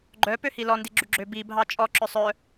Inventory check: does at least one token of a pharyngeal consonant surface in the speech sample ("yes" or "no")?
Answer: no